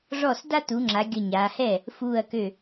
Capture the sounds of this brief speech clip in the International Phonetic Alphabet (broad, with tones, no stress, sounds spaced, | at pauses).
ʐ ɔ˥˩ s d a˦ t u˩˧ ŋ͡ǁ a˩˧ ɡʲ ə˧˩ ɲ aː˩˧ h ɛ˥˩ | f uː˧˩ ɐ̯ k ø˧˩